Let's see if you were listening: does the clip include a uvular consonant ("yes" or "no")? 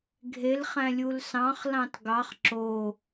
yes